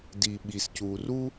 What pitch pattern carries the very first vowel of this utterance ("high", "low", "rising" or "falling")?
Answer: low